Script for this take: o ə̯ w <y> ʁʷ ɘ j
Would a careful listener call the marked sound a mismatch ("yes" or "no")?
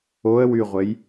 no